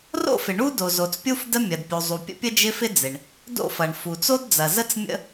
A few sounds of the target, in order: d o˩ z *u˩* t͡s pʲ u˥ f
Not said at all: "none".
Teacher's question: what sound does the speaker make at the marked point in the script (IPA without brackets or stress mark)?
o˩